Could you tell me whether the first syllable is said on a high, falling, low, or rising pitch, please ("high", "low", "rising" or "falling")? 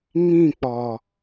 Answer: falling